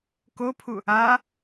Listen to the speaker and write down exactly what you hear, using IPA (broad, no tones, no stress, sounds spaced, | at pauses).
k o pʰ u | a